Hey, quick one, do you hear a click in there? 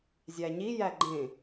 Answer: yes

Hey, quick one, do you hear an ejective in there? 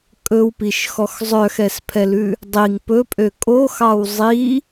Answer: yes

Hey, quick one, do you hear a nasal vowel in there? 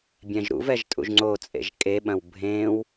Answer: yes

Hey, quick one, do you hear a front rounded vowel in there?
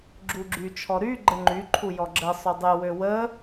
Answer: yes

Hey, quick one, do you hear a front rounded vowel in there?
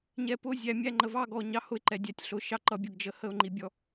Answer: no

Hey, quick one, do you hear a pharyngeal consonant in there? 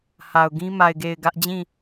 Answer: no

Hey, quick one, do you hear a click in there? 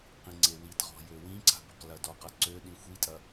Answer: yes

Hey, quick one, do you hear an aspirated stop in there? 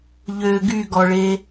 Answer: no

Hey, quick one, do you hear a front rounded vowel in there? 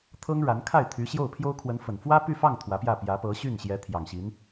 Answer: yes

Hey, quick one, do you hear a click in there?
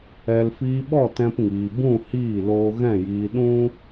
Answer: no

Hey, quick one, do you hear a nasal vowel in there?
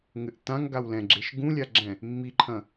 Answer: yes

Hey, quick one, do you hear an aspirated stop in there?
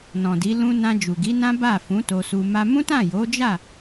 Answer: no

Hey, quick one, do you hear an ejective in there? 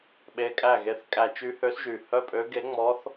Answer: yes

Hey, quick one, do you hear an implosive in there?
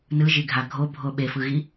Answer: yes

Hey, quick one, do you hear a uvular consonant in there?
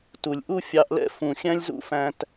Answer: no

